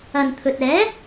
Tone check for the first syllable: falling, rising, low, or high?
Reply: low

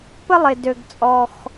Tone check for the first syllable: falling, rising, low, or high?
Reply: high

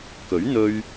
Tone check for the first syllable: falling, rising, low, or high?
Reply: rising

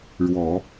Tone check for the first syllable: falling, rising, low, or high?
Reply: low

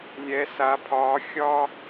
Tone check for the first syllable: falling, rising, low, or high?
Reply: rising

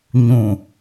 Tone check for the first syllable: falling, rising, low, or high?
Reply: low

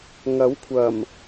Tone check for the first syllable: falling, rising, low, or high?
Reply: rising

